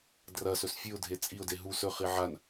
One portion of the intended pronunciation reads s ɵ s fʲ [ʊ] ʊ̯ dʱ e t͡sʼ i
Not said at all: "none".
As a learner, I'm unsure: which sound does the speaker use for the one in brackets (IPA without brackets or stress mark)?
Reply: ʉ